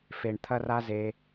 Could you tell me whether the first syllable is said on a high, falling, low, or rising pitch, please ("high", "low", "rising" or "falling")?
low